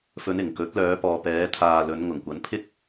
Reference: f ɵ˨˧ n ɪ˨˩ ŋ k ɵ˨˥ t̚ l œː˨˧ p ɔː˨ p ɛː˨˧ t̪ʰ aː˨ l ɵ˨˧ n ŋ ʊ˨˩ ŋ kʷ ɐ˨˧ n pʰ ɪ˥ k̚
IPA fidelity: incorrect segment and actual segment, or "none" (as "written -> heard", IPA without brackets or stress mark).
none